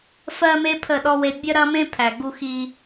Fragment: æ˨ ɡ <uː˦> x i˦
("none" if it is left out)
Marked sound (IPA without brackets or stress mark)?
u˦